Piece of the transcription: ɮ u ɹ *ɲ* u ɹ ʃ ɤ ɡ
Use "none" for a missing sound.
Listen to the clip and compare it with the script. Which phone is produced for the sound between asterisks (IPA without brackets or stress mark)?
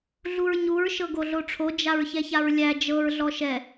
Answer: ɲ